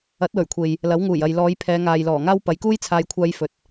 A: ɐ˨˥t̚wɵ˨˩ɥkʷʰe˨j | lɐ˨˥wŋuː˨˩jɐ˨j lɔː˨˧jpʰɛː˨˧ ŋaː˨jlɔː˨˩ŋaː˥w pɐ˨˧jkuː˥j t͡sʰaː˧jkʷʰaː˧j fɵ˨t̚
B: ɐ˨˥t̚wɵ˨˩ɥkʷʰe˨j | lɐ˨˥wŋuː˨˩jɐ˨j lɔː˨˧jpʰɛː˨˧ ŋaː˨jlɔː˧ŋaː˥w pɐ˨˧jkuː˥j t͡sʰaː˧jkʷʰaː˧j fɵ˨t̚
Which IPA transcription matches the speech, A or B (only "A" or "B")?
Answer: A